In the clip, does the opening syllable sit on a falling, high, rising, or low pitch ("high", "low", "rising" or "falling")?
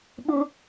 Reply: high